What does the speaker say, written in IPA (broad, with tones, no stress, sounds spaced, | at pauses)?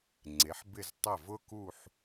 ŋ͡ǀ e˩˧ ħ b ɪ˧˩ z tˤ ɐ˧˩ v ʊ˥ k u˥˧ ħ